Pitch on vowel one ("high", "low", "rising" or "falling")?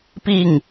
falling